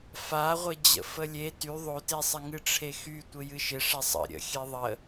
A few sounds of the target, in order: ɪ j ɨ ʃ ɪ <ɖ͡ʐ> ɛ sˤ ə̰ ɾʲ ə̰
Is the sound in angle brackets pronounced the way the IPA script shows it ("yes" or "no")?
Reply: no